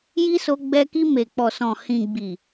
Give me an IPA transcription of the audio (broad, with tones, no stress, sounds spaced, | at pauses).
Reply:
j i˦ s o˧ ɡ͡b ɛ˧ k i˧ m e˨ k͡p ɔ˨ s ɔ̃˨ h ĩ˨ ɡ͡b i˨